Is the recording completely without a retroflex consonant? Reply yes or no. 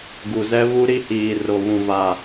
yes